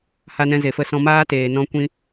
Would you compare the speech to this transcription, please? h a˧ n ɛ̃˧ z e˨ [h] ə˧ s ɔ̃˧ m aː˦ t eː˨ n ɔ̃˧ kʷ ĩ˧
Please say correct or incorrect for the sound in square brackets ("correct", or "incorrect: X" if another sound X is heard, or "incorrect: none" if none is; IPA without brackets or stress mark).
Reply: incorrect: f